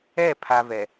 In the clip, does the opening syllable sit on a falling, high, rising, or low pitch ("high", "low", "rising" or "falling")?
falling